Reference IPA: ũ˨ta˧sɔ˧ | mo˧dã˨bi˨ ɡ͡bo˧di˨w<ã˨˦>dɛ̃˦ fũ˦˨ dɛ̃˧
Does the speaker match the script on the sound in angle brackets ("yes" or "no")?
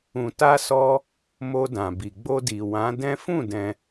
yes